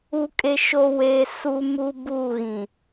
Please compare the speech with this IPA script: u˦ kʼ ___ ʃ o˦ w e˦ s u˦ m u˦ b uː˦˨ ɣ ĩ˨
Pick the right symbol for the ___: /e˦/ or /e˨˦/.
e˦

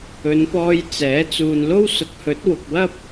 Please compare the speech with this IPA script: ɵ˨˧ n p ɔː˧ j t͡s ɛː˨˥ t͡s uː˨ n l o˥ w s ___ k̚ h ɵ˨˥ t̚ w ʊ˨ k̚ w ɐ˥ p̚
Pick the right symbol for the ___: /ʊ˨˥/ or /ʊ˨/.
ʊ˨˥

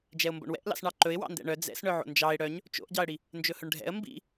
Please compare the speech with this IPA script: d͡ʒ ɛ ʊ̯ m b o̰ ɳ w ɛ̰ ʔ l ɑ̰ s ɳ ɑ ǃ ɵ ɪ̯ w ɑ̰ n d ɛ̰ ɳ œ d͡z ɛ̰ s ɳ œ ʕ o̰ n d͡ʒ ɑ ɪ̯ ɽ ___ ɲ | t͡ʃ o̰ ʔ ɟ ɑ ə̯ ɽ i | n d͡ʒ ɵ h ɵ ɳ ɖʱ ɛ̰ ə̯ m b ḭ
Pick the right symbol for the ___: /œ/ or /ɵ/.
œ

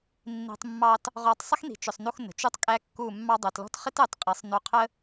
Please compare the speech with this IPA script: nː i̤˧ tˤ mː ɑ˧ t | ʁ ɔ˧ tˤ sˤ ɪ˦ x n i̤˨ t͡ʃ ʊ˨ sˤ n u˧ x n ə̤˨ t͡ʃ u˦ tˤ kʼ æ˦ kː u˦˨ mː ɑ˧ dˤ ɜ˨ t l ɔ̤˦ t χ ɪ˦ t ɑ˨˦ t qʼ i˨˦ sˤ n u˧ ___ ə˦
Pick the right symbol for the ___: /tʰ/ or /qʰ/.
qʰ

